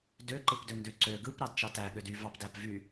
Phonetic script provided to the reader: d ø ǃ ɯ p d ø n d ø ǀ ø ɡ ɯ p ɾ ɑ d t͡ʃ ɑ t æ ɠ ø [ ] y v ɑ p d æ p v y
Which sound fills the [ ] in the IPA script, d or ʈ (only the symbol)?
d